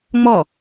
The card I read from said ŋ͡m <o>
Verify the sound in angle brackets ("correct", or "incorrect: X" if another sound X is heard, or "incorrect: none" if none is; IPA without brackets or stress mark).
incorrect: ɔ